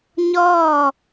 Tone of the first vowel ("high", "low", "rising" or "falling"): falling